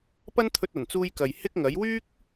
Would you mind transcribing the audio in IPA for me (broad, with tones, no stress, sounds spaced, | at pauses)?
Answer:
p ɐ˥ n t̪ʰ ɵ˧ t̚ ɐ˨˩ n t͡s uː˧ j k ɐ˨ j h ɪ˥ k̚ ŋ ɐ˨˥ j w yː˥ k̚